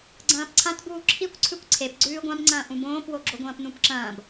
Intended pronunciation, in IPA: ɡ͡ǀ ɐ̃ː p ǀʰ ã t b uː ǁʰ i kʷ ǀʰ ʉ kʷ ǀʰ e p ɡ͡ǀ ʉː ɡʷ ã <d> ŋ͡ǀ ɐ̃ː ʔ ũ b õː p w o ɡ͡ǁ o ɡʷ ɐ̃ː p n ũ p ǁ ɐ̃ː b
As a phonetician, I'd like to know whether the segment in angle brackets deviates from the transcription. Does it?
yes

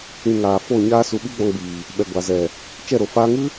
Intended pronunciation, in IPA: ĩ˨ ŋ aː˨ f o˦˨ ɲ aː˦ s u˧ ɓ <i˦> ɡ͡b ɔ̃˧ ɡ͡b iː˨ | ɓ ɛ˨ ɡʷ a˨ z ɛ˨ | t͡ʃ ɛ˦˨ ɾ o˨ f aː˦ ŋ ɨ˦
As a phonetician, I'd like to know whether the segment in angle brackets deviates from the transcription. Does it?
no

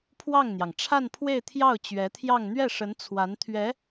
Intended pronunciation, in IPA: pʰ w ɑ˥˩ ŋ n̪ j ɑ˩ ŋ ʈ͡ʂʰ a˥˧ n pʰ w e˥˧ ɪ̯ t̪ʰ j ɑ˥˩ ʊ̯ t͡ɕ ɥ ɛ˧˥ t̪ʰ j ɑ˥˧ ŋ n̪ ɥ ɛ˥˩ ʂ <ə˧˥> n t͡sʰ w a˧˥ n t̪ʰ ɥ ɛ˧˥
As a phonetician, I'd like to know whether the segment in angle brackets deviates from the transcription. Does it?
no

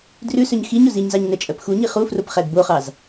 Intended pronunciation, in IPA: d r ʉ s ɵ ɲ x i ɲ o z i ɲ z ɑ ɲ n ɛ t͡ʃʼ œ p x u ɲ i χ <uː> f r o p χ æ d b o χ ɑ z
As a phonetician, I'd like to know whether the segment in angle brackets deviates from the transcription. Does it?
yes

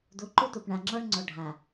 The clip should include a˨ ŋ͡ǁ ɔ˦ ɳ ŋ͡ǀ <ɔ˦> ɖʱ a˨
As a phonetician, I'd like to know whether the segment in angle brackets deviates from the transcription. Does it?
yes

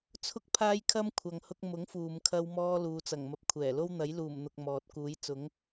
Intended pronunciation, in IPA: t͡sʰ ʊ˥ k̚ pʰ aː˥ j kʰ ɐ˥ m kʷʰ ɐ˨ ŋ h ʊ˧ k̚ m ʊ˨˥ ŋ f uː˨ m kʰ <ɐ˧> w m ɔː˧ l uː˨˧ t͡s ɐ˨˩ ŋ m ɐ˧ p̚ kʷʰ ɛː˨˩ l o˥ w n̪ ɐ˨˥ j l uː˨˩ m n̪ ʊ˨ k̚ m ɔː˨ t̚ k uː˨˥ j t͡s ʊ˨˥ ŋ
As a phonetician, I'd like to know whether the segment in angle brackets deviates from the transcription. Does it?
no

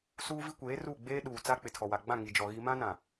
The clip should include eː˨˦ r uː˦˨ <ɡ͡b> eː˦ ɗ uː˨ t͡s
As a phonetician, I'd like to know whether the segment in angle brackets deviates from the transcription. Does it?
no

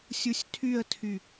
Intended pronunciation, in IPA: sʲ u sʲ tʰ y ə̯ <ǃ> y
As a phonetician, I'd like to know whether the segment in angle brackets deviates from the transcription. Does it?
yes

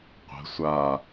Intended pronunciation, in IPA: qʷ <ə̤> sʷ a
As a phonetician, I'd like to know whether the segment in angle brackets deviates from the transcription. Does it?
no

